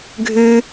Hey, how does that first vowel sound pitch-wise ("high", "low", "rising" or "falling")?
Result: high